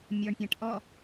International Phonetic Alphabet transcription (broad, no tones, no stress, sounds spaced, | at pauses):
mʲ ɔ ɳ pʲ æ̃ ʈ ʔ ɔ